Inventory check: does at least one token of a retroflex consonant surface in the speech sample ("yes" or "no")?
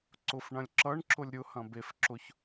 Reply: yes